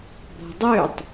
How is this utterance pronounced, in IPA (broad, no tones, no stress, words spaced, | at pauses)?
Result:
bɔ̤dˤøtˤ